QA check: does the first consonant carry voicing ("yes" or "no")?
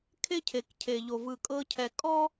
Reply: no